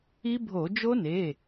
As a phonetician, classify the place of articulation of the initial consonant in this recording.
labial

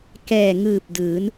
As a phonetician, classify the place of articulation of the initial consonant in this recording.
velar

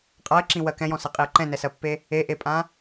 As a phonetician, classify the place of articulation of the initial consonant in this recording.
uvular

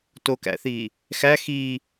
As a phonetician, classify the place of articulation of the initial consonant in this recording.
alveolar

